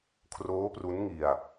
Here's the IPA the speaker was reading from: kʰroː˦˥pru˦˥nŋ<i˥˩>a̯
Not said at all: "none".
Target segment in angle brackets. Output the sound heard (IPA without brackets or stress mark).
i˧